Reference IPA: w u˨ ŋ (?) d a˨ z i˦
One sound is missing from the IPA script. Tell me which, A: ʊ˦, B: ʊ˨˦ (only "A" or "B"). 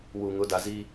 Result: B